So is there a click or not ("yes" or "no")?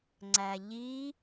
yes